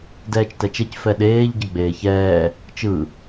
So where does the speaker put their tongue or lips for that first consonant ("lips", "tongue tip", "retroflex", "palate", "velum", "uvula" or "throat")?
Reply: tongue tip